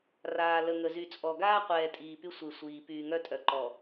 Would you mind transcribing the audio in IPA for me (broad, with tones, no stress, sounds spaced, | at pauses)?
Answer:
r aː˨ l ə˨ ŋ ə˨ z y˨ t͡sʼ ɔ˨ ɡ aː˦ qʷ ɛː˨ tʼ iː˨ p y˦ sʷ e˨ sʷ iː˨ p yː˨ ŋ œ˦ tʼ œ˨ ǃ ɔ˨